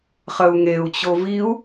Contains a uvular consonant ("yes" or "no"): yes